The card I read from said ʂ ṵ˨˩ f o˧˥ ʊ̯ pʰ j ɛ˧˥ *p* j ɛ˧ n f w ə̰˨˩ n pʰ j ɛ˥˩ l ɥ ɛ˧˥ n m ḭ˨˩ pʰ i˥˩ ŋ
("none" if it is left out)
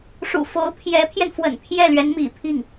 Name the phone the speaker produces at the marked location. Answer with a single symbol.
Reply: pʰ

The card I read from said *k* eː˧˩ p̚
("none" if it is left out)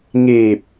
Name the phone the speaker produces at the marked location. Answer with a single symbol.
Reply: ŋ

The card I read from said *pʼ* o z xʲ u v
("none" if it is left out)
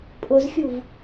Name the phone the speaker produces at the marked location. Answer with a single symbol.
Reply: pʼ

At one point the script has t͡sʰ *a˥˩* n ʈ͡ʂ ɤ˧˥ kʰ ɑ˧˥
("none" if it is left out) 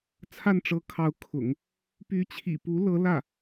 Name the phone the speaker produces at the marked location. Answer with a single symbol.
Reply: a˥˩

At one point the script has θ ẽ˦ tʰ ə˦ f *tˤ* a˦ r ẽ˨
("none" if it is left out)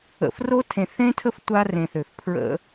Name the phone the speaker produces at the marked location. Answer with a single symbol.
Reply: tʷ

